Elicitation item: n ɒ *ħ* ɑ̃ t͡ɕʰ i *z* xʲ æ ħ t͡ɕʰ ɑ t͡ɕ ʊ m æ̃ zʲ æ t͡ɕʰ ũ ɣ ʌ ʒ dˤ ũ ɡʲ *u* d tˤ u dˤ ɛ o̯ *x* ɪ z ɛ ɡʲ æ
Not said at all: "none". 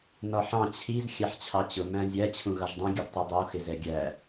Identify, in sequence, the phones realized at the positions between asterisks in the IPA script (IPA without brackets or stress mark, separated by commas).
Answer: ħ, z, u, x